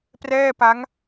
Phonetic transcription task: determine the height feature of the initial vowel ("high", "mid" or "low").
mid